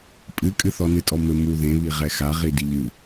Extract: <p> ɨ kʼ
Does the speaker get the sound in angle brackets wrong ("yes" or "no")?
yes